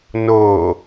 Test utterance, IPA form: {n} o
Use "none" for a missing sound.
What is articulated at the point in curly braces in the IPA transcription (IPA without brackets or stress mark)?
n